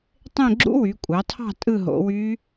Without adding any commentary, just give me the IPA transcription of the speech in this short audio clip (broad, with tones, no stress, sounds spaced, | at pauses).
tˤ ẽ˦˨ ɡ͡ǁ ṵ˦˥ w y˩˧ kʷʼ ɑ˩˧ tʰ ɑ̤˦˨ tʼ ɯ˦˨ ɦ o̰˩˧ w y˦˥